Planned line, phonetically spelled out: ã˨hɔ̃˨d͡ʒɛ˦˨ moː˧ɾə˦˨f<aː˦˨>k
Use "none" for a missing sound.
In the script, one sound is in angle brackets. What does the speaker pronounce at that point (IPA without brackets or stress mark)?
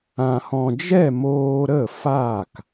aː˦˨